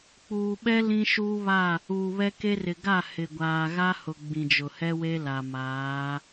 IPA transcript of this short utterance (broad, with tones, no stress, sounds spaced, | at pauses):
k͡p uː˨ ɓ ɛ˦ l ĩ˦ ʃ uː˦ β a˦˨ | uː˨ β ɛ˦ k e˦ r ɪ˨ ɡ a˦˨ h ɪ˨ ɡʷ aː˨ ɣ a˦ h ʊ˨ ɡ͡b ĩ˨ d͡ʒ ʊ˨ h ɛ˦ w e˦ l a˨ m aː˨˦